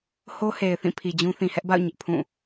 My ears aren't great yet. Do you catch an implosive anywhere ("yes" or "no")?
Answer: no